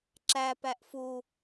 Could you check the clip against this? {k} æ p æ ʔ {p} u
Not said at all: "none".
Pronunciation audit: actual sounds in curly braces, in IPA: ǁ, f

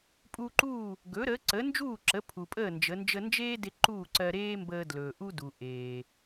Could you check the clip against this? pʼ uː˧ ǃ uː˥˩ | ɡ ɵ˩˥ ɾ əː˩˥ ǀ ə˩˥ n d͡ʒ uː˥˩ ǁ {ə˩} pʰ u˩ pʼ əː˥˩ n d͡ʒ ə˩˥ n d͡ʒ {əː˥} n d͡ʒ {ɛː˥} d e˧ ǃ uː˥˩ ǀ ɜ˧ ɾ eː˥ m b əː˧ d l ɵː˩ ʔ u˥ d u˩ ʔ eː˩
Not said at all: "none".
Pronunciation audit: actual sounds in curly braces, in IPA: ə˩˥, ə˥, eː˥

